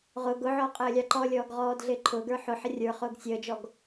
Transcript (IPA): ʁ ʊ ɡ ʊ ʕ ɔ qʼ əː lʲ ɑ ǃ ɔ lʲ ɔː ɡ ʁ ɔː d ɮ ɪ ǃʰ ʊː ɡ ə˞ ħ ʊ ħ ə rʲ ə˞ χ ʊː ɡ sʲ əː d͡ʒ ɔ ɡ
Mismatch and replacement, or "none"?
none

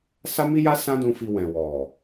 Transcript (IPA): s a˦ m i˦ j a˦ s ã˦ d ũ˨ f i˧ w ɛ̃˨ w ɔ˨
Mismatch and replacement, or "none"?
ũ˨ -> ũ˧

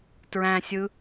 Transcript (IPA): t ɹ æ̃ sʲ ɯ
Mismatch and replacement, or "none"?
none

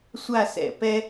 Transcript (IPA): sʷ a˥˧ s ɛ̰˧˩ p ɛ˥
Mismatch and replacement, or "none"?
none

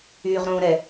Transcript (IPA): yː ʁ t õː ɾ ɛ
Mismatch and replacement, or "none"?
t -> ɾ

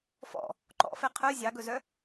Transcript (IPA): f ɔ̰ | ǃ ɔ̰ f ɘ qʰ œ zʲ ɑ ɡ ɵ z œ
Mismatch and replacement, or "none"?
ɘ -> ɛ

